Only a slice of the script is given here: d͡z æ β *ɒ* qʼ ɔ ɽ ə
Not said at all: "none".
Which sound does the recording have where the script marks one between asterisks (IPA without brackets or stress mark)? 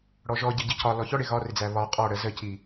ɒ